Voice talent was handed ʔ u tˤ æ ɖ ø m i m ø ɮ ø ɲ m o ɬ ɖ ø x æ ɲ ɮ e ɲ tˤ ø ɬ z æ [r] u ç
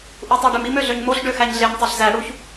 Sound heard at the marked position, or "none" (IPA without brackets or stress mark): ɽ